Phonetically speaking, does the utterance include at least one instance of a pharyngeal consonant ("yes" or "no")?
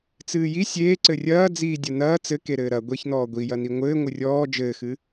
no